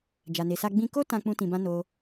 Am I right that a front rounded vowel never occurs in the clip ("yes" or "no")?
yes